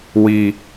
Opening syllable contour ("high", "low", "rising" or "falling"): low